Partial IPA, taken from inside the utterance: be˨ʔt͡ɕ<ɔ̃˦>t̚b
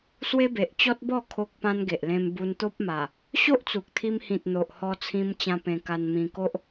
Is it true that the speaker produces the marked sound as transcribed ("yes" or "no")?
no